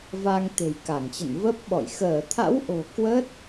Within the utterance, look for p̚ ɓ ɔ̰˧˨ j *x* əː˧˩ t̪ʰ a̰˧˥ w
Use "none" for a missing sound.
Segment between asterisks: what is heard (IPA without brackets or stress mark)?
x